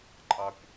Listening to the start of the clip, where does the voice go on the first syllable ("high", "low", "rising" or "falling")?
low